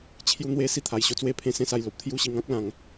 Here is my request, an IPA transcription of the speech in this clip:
t͡ɕʰ j u˦ n̪ w e˦ s i˥˧ t̪ʰ a˧ j ɕ o˦ t͡s w e˦ pʰ ẽ˥˧ s ẽ˦ s a˧ j l o˨ p̚ t̪ʰ j u˥˧ ɕ i˧ ŋ ã˦ k̚ l ã˧ ŋ

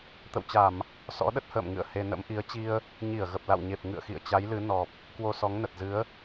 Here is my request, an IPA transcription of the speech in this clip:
t̪ ə̰˧˨ w t͡ɕ a˧˩˨ m | s ɔ̰˧˥ ɗ ə˦˥ t̚ h ə̰ː˧˨ m ŋ ɨ̰˧˨ ə̯ h e˧ n ə̰˧˥ m ʔ i˨˦ ə̯ t͡ɕ i˧ ə̯ | ɲ i˧˩ ə̯ ɣ ə˨˩ p̚ l a̰˧˨ w ɲ e˨˩ p̚ ŋ ɨ̰˧˨ ə̯ x ḭ˧˨ ə̯ t͡ɕ a˨˦ j l ɨ˨˦ n ɔ˨˩ p̚ | k w o˧ s ɔ˨˦ ŋ n ə˨˩ t̚ z ɨ˨˦ ə̯

